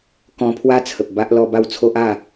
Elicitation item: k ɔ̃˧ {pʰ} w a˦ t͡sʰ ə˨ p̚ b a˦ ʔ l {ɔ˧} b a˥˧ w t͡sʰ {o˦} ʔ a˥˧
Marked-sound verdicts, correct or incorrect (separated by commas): correct, correct, correct